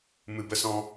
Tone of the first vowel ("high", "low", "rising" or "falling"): low